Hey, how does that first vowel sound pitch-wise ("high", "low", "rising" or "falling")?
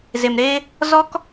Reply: low